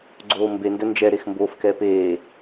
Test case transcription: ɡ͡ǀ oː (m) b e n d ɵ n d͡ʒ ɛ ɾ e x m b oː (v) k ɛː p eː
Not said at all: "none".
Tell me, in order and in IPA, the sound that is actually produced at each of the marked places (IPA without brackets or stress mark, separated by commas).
m, f